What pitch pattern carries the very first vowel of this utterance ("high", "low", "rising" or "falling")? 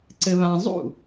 low